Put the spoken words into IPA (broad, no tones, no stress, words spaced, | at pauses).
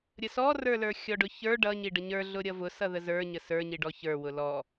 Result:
ɾʲəsɔrə˞lə˞ xʲɔɖʊçə˞ ɖʌɲiɖə ɲə˞ɮʊ ɾʲʌvʊ sʌðəzə˞ ɲəsə˞ɲiɖɔ çə˞wʊ lɔ